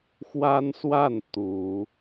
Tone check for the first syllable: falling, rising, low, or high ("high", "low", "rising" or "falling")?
high